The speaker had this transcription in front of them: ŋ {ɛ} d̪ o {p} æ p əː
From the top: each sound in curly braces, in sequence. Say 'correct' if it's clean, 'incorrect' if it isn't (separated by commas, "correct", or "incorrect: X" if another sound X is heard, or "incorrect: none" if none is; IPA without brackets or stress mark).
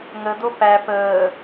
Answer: incorrect: ə, correct